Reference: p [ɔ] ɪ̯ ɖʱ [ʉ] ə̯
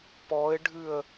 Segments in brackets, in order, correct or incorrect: correct, correct

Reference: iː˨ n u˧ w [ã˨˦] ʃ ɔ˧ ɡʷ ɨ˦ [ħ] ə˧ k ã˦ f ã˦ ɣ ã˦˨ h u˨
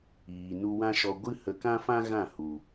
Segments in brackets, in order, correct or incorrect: incorrect, incorrect

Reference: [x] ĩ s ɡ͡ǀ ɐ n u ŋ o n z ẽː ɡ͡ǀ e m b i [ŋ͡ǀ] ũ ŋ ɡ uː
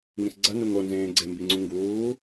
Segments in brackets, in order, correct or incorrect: incorrect, correct

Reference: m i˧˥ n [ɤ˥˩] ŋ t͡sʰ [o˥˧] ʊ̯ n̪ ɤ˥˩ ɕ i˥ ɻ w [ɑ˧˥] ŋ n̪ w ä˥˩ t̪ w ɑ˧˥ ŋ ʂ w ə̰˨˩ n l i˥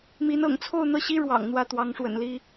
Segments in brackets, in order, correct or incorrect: incorrect, correct, incorrect

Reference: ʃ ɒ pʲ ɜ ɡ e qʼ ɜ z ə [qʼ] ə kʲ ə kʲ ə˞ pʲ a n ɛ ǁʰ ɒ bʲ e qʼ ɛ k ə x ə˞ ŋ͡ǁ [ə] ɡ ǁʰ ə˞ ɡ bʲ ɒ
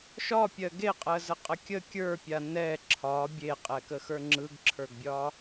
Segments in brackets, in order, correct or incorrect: correct, incorrect

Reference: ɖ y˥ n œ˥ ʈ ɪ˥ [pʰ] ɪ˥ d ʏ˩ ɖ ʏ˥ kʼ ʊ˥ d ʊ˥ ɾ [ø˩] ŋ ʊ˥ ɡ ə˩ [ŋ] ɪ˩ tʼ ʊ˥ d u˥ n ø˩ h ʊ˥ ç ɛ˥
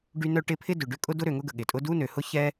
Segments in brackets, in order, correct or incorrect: correct, correct, incorrect

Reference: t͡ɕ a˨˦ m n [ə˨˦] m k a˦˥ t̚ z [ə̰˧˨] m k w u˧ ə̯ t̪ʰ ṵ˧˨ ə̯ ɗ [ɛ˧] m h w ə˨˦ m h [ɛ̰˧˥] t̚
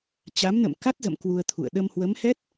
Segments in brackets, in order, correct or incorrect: incorrect, correct, incorrect, incorrect

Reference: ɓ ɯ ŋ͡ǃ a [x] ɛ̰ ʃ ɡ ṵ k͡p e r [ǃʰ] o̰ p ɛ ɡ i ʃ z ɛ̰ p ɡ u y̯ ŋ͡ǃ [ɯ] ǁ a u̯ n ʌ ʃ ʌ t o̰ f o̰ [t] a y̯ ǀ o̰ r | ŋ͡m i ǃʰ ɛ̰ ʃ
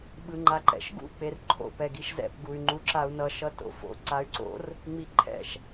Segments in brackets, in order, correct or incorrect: incorrect, correct, incorrect, incorrect

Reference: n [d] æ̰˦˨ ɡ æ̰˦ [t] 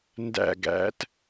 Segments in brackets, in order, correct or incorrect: correct, correct

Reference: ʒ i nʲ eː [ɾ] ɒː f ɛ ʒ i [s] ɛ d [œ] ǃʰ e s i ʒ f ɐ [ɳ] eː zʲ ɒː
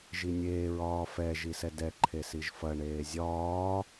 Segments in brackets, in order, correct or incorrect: incorrect, correct, incorrect, correct

